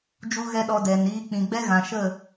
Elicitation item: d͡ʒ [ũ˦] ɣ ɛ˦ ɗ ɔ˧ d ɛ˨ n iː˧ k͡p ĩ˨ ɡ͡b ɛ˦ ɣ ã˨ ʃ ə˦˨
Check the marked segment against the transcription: incorrect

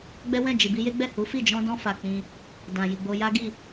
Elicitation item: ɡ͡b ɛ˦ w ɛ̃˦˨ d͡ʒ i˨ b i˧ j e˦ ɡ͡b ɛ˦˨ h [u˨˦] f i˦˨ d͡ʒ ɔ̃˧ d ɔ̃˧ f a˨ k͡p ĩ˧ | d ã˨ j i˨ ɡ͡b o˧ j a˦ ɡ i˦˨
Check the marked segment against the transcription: correct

